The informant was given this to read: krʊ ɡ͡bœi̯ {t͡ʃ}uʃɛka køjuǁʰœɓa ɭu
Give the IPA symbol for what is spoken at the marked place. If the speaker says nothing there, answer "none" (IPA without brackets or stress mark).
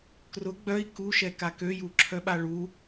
k